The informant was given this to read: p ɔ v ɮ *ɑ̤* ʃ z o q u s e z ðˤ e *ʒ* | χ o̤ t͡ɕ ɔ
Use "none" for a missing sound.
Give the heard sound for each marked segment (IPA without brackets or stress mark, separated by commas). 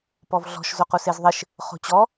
ɔ̤, ʃ